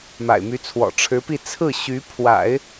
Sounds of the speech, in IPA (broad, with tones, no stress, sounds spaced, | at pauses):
m a̰˨˩ ɪ̯ m y˧˥ t͡sʰ w ɔ̰˨˩ ʈ͡ʂʰ ɻ̩˧˥ p i˥˧ t͡sʰ ɹ̩˥˩ ɕ y˧˥ pʰ w a̰˨˩˦ ɪ̯